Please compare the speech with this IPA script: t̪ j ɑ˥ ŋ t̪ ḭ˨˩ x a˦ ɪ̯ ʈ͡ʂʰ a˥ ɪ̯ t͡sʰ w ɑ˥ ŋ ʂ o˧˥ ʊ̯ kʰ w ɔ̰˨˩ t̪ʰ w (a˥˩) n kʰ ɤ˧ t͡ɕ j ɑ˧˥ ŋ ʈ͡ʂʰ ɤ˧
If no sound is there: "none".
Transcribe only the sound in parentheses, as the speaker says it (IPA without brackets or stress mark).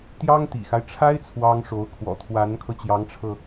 a˧˥